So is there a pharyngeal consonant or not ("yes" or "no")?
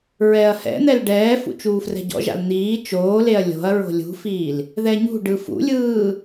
no